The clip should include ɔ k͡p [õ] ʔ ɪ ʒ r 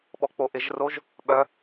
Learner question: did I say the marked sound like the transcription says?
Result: no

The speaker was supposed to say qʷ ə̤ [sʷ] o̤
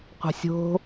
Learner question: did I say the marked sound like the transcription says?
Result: no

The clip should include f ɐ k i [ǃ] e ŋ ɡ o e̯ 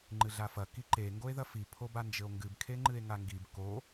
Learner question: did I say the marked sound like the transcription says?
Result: yes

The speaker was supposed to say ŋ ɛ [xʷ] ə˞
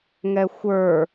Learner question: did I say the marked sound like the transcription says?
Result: yes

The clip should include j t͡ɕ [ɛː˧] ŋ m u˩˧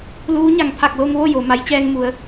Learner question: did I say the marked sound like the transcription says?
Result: yes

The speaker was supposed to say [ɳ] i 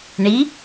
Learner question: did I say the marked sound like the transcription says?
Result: yes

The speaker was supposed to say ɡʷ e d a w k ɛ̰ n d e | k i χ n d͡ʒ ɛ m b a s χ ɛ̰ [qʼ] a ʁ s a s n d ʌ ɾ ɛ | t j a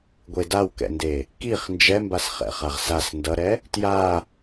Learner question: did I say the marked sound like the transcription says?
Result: no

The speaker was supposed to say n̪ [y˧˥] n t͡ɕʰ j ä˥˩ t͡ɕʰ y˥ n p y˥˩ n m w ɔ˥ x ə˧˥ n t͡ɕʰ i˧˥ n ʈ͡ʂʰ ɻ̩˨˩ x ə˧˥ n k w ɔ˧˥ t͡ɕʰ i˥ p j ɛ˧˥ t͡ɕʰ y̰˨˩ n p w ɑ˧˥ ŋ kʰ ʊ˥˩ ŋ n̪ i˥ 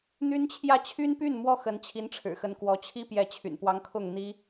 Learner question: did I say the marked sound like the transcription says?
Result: no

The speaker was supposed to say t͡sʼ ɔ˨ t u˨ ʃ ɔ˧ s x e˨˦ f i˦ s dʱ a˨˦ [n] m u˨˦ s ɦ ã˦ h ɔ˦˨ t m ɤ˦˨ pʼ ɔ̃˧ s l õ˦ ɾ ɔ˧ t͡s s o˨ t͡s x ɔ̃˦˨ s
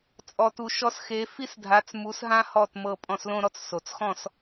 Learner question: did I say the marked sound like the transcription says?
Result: no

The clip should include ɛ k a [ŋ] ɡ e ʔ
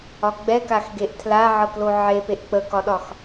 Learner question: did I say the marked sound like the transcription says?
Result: no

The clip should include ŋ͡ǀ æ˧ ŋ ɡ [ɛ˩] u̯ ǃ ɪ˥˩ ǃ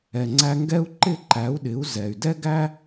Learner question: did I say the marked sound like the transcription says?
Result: no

